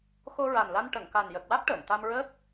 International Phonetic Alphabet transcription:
x o˧ ɹ a˨˩ n l a˧ n ʈ ə˨˩˨ ŋ k a˨˩ n j ə˨˩ k̚ w a˦˥ k̚ ʈ əː˨˩˨ n t̪ a˧ m ɹ əː˦˥ k̚

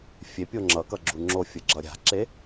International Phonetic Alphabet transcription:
fʲ e pʲ o ŋ͡ǁ ʌ k ʌ ɡ͡ǁ u ŋ͡ǁ o fʲ ɯ ɡ͡ǁ ʌ ɾʲ a̤ ǁ e

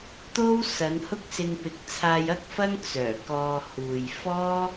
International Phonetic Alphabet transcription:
t̪ o˥ w s ɐ˨˧ n h ʊ˥ k̚ s ɪ˧ ŋ p ɪ˨˥ k̚ t͡sʰ aː˧ j ɐ˥ k̚ f ɐ˥ ŋ t͡s œː˨˩ k ɔː˧ h uː˨ j f ɔː˥

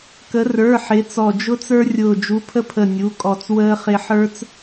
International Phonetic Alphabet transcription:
k ə˨˥ r ə˞˩˧˩ ħ ɪ˨˥ t͡s ɔ˧˩ d͡ʒ ʊ˦ t͡s ə˞˦ rʲ ʊː˧˩ d͡ʒ u˨˥ pʰ ə˦ pʰ ə˧˩ nʲ u˩˧˩ kʼ ɔ˧˩ t͡s w əː˦ χ ɪ˦ ħ ə˞˦ t͡s

